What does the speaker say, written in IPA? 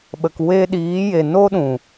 ɓ ə˨ k w e˧ ɗ iː˨˦ j e˨ n o˦ ɗ ũ˨

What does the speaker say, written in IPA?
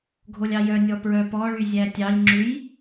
ɡʱ o lʲ ɑ j œ nʲ ɔ p ɹ œ p ɔ ɭ y zʲ æ tʲ ɑ lʲ ŋ͡ǁ ʉ j

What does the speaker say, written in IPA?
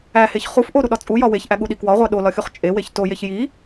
æ h e ç χ u f ʔ o ɾ u ɗ ɒ t͡sʼ u j ɒ w e ç ʔ æ ɠ u ɗ i k w ɒ ʁʷ æ ɗ o l ɒ xʲ u χ t͡ʃʼ e w e ç t o j e ç j i

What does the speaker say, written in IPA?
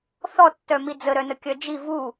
θ ɔ tː œ m i d͡z ə ɾ œ n ə kʲ œ d͡ʒ i v u

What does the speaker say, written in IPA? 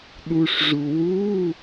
ɗ u˩ ʂ ʐ u˩ w u˧˥˧

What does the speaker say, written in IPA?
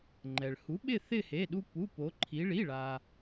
ŋ͡ǃ ɛ˩ ɭ h u˩˥ ɓ ɪ˦˨ θ ɪ˦˨ h e˩˧˩ ɗ u˦ p u˩˧˩ p o˩˧ ǃʰ i˩˧ ɭ i˩˧˩ ɭ a˩

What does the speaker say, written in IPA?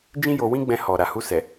d͡ʒ ĩ˦ j o˧ w ĩ˦ ɡ͡b ɛ̃˧ h ɔ˨ ɾ a˨ h u˧ s ɛ˨

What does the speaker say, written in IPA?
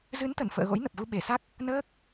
z ɨ˨˦ n t̪ ə˧˩ n f ə̰ː˧˨ ɣ o̰˧˥ j n ə˨˩ p̚ ɣ u˧ ɓ e˧˩ s a˦˥ k̚ | n əː˦˥ k̚

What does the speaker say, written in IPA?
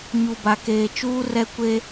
ɲ u˨ b a˨ k eː˨ t͡ʃ uː˦ r ɛ˦ kʷ e˦

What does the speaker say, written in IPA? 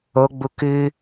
o ɡ͡b u k ɨ

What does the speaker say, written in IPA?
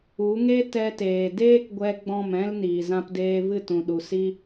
u˨˦ ŋ e˦ t ɛ˧ t eː˨ d eː˦ k ɡʷ ɛ˧ ɡ͡b ɔ̃˦˨ m ɛ̃˦ l n iː˨ z ã˧ p d eː˧ v ɨ˦˨ t ũ˨ ɗ u˨ s i˧

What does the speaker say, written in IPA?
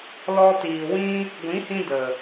l ɔ˧ t iː˨ w ĩ˦ | ɡʷ ĩ˨˦ h ĩ˧ d ə˨

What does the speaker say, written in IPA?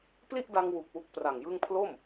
p l i˥˩ ʔ d a˧ ŋ w u˨˩ k̚ w u˦˥ k̚ p r a˨˩ ŋ j ɯ˥˩ ŋ pʰ l o˥˩ m

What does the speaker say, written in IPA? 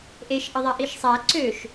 ʔ e ʃ ʔ ə ðˤ a ʔ i ʃ sˤ æ ǀ ø ʃ

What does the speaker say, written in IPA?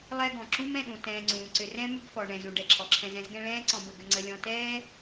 lˠ ɛ˦ ɡ ɔ̃˩ ǁ ũ˥ m ɛ̃˨ ɗ ũ˩ t ɛ̃ː˨ ŋ͡ǀ ũː˩ ǀ ʏ˨ r ɛ̃˥ m ʏ˦ ɡ f ɔ˩ ɳ ɛ̃˩ z ũ˩ ɖ ɛ˩ ǁʰ ɔ˩ ǁʰ ɛ̃˨ z ɛ̃˦ z ɡ ɛ̃˦ ɭ ɛ̃ː˥ ǀ ɔ̃˨ b ə˩ ɡ ʏ˨ ŋ͡ǀ ə˨ lʲ ɔ̃˨ t ɛː˥

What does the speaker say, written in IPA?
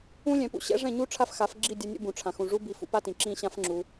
ũ˦ lʲ ɛ̃˨˦ p ṵ˦ ɕ ɛ̰˦ ʐ ɛ̃˦˨ ɲ u˦ ʈ͡ʂʰ a˦ f x a˨˦ f ɡ͡ǁ i˦˨ dʲ a˧ nʲ ṵ˧ b ũ˨ ʈ͡ʂʰ ã˨ x ũ˨ ʐ u˦ b i˧ f ṵ˦ p a˦ t ĩ˨ ǁ ĩ˦ ɕ ã˦ f ŋ͡ǁ u˧

